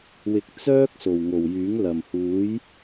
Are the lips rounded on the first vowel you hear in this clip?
no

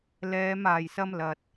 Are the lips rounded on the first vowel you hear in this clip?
no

